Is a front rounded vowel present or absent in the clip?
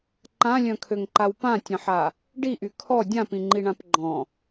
present